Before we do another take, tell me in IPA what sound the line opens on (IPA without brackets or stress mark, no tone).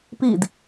p